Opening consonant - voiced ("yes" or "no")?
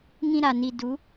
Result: yes